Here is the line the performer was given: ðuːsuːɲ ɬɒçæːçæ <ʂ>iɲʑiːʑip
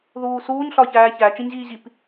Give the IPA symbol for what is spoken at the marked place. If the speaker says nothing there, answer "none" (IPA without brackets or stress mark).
t͡ʃ